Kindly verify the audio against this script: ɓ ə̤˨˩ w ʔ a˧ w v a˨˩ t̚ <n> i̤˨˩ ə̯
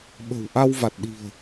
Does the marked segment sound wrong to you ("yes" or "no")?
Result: yes